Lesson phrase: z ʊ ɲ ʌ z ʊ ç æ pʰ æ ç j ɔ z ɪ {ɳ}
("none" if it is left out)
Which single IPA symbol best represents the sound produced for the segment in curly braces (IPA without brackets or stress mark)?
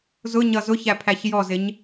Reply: ɲ